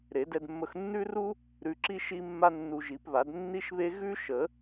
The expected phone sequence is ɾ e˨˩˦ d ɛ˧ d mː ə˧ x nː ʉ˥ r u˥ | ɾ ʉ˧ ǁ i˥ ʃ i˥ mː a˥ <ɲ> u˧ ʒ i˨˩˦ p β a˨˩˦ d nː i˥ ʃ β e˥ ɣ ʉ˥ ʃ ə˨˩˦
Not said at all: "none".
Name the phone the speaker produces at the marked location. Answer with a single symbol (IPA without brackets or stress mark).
nː